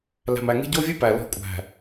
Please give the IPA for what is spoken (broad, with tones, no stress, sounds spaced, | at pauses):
l æ̤˨ m æ˨ ŋ e̤˦ ɟ o˦ vʲ ʉ˦ p æ˨ l ɔ̤˦˨ kʷʼ æ̤˨